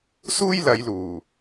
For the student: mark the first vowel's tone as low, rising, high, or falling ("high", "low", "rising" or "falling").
high